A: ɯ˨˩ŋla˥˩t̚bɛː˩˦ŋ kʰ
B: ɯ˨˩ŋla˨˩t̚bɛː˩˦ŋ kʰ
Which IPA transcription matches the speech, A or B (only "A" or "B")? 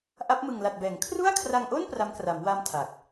B